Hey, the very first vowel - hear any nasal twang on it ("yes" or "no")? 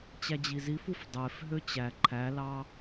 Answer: no